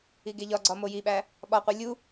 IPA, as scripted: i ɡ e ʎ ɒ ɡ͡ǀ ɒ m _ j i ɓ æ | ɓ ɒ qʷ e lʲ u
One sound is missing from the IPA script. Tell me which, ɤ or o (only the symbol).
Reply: o